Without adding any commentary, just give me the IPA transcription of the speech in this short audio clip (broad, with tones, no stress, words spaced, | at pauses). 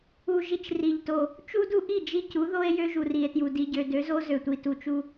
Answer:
u˨ʒi˨t͡ʃ ri˨ʎto˨ | t͡ʃu˦du˦ʔi˦˨ d͡ʒi˦cu˨˦ðo˦e̯ jø˦ʒu˨ ri˨e̯tju˨ di˨ɟø˨dø˨˦zo˦ zø˨tʷi˨ tu˨t͡ʃu˦